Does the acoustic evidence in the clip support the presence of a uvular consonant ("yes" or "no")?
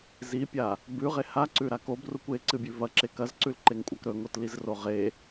yes